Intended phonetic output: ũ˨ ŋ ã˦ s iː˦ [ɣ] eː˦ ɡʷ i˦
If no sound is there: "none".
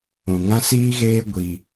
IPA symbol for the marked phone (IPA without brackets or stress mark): ɣ